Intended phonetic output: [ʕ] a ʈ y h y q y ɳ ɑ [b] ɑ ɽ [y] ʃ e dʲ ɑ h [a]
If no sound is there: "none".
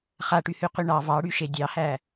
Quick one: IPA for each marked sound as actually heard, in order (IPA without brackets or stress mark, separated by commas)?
χ, v, y, æ